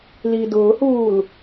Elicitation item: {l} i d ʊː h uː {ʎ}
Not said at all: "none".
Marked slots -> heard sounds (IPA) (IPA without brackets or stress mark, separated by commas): l, l